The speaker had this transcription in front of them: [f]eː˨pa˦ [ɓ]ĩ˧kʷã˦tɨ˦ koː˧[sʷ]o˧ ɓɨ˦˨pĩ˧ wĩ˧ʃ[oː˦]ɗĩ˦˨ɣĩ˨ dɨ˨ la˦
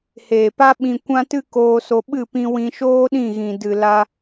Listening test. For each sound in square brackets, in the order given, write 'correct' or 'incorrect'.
incorrect: h, correct, incorrect: s, correct

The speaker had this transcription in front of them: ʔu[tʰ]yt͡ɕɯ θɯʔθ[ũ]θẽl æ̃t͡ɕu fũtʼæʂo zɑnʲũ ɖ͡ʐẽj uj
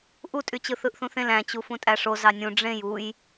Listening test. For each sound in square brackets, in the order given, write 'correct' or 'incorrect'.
incorrect: tʼ, correct

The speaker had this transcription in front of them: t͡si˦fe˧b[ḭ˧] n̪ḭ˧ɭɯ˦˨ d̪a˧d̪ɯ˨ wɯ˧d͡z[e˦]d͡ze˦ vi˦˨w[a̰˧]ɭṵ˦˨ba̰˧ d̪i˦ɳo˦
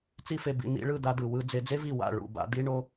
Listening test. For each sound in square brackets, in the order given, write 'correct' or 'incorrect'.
correct, incorrect: e˧, incorrect: a̰˦˨

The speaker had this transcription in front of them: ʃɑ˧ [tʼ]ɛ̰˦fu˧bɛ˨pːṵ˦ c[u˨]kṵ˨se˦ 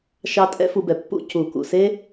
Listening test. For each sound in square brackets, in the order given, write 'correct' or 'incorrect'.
correct, correct

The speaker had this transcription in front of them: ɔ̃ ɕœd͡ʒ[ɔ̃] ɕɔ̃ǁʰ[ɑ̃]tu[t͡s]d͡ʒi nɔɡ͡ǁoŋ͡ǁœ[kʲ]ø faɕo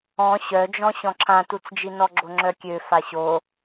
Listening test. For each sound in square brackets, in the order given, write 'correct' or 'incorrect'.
correct, incorrect: ã, correct, correct

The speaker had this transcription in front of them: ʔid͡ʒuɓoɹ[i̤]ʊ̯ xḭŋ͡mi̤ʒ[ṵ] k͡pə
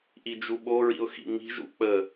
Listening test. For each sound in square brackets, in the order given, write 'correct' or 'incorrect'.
incorrect: ḭ, correct

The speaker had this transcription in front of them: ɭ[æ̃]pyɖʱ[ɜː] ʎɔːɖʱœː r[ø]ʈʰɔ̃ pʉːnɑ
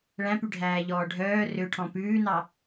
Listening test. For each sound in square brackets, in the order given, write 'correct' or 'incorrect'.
correct, incorrect: æː, correct

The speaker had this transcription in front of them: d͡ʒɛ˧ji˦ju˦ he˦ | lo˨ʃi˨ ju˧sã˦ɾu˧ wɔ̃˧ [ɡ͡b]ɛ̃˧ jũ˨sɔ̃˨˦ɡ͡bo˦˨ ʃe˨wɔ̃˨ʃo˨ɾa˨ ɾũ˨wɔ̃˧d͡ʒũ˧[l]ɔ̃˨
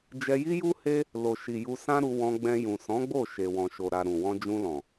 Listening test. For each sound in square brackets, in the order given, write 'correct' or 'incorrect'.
correct, correct

